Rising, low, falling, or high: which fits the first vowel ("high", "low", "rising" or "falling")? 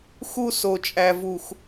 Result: high